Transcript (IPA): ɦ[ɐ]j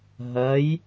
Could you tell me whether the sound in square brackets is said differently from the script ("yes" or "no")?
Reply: no